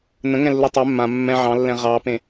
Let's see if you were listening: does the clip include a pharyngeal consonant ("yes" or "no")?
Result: yes